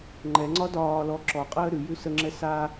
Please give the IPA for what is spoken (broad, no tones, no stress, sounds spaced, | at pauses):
ŋ͡ǃ ɛ ŋ͡ǀ ɒ d ɒː l ɔ ǁ ɔ qʼ əː ɾ ʉ j ʉ s ə ŋ͡ǁ ɛ s a